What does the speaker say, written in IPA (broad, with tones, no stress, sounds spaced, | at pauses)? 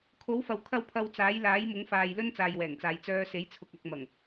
kʰ o˨˥ w f ɐ˨ w kʰ ɐ˥ w pʰ ɐ˧ w t͡s aː˨˥ j l aː˨˥ j m ʊ˨˥ ŋ f aː˨ j l ɵ˥ n t͡s aː˨ j w ɛː˨˩ ŋ t͡s aː˨ j t͡s œː˧ s e˨˥ j t͡sʰ ʊ˨ k̚ ɐ˨ k̚ m ɐ˨˩ ŋ